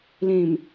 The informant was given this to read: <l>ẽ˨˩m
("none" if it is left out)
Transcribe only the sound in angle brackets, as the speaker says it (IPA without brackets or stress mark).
l